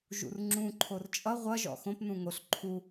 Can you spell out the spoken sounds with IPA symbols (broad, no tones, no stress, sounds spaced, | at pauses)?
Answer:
ʒ ṵ r ŋ͡ǁ ũ ǃʰ o r t͡ʃʼ ʌ ʁʷ ʌ ʒ ɔ̰ x õ p n ũ ŋ o ɬ ǃʰ u